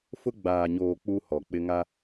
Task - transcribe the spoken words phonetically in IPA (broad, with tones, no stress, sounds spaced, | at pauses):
f ʊ˦ ɡ͡b aː˨ ɲ oː˨ k͡p u˦ h ɔ˨ k͡p ɪ˦ ŋ a˦